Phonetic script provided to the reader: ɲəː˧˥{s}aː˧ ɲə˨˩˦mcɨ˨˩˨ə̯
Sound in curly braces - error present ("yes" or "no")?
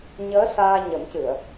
no